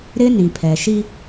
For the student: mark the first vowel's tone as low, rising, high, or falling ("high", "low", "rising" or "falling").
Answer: high